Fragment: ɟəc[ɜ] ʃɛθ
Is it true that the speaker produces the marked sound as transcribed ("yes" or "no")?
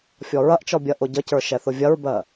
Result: no